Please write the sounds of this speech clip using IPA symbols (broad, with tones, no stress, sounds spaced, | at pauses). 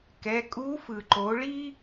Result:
k ɛ˩˧ kʼ u˧˥ f ɯ˩ ǃ o˩˧ ɭ i˥